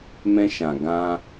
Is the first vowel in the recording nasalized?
yes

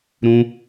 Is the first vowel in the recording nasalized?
yes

